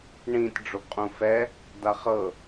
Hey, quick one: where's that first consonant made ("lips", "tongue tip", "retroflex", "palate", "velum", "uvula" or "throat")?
retroflex